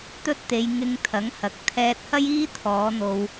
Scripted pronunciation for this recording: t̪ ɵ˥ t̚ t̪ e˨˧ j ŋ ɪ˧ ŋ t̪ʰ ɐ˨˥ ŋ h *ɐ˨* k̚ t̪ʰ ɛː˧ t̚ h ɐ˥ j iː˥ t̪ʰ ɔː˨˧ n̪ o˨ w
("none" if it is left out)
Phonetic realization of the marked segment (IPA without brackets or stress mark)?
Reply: ɐ˨